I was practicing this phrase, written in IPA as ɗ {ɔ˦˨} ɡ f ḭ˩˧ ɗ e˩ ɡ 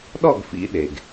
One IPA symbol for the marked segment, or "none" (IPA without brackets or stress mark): ɔ˦˨